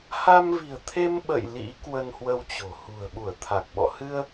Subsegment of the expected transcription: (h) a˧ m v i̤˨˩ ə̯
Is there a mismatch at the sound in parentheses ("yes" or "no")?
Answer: no